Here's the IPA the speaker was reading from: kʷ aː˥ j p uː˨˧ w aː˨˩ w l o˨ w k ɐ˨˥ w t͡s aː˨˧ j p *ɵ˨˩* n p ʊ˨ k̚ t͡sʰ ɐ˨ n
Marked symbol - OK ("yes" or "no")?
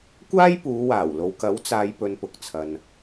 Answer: no